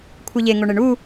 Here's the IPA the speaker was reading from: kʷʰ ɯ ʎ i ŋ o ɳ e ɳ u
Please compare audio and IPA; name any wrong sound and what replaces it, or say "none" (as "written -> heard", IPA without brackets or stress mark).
i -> e